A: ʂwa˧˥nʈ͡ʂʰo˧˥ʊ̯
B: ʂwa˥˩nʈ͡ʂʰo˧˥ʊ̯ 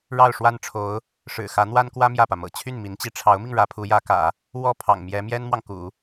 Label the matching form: B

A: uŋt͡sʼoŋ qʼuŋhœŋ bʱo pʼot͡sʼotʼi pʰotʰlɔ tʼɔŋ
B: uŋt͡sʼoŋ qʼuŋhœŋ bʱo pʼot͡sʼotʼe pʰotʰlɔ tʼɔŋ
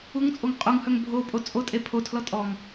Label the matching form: B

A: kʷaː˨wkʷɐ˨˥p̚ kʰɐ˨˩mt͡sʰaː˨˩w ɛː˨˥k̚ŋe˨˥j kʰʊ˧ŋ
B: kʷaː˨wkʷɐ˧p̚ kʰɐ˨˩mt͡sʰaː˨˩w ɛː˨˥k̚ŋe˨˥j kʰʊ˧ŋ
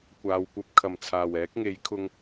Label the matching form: B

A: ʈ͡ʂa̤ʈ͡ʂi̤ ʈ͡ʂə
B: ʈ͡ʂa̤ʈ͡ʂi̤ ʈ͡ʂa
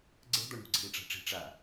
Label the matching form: B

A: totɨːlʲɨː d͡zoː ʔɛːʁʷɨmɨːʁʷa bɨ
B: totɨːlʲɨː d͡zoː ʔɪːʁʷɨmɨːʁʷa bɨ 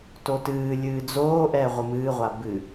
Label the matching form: A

